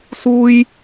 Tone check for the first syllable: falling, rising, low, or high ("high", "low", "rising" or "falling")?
high